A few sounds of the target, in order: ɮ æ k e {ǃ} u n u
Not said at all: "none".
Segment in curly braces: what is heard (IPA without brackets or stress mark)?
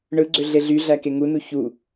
ŋ